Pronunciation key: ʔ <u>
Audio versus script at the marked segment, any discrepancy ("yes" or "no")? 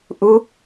no